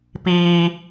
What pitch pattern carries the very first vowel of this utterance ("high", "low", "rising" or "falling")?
low